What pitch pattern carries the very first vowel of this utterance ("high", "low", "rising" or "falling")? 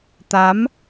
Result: rising